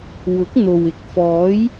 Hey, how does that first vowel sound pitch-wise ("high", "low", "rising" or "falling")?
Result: rising